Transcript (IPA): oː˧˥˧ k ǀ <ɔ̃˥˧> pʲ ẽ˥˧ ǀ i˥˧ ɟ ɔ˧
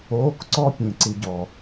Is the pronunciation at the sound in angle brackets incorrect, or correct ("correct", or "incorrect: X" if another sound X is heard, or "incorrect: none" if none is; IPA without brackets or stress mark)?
incorrect: ɔ˥˧